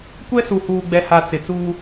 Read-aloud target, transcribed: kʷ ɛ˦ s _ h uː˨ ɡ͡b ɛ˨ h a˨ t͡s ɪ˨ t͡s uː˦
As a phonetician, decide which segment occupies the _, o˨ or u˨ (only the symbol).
u˨